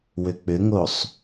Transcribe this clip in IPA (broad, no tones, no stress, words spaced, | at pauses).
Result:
wʏk͡pʏŋosˤ